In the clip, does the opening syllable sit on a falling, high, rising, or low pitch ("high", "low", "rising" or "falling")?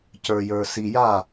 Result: low